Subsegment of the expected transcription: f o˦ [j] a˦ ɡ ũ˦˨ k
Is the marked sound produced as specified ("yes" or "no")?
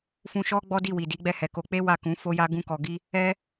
yes